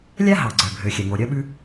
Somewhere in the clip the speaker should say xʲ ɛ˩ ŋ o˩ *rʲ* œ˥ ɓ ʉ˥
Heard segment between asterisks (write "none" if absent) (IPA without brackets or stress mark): ɾʲ